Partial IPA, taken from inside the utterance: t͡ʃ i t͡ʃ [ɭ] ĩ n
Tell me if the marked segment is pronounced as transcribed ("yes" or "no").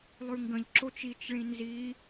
yes